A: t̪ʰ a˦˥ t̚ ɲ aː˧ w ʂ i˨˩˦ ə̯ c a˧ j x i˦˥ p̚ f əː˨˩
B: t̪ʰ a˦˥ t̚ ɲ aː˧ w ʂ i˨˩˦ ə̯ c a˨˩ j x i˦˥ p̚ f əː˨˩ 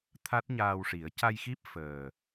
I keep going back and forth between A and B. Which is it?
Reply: A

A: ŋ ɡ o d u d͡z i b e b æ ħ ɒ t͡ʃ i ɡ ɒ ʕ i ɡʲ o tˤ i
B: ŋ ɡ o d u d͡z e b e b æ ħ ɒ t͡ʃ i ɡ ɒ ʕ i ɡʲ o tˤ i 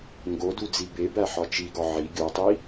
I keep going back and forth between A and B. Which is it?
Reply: A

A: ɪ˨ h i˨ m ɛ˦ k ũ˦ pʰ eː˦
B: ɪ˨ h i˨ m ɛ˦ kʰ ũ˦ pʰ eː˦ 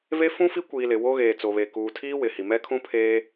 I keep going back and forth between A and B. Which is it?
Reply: B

